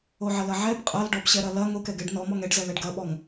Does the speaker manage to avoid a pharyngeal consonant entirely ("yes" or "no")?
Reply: no